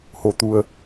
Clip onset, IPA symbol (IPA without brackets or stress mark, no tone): h